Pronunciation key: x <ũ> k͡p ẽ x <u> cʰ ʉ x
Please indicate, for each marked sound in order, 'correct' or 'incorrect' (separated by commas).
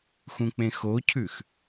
correct, incorrect